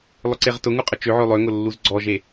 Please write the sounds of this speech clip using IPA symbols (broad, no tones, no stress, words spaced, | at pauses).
lˠʊǀeʁtʊŋu qʼət͡ʃøʕø lˠøŋʊ lːuzɡ͡ǀɔʒe